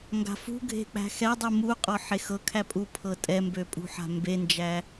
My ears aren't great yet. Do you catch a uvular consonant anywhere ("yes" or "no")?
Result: yes